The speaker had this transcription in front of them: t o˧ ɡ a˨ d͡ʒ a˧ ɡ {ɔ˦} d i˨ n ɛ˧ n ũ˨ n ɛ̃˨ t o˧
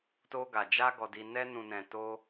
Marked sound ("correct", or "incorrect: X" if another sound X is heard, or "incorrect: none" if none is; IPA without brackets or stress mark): incorrect: ɔ˨